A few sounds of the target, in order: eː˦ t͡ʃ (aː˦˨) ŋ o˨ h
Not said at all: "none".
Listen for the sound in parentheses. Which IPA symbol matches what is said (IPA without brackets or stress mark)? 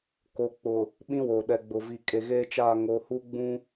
aː˦˨